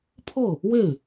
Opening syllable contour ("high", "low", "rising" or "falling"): falling